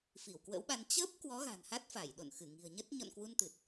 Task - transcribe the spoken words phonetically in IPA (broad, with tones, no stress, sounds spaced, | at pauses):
f i˧˩ w k w ə̰˧˥ w ɓ a˧ n t͡ɕ əː˦˥ p̚ k w ɔ˨˦ ɣ a̤˨˩ n h a˦˥ t̚ f a˧˩ j ɗ o̰˧˨ n x ɨ˧˩ ŋ i̤˨˩ ə̯ ɲ ə˦˥ t̚ ɲ ɔ̰˧˨ n k w u˧ n t̪ ɨ˨˩ t̚